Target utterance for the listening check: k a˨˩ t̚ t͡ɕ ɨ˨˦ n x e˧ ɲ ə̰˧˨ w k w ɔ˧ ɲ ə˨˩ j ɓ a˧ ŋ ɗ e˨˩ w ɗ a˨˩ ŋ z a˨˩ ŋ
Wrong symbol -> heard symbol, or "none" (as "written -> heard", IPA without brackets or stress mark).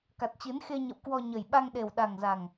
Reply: none